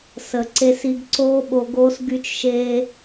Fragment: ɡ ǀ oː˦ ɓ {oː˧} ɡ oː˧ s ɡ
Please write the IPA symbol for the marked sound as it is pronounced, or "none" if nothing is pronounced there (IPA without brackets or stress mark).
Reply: o˧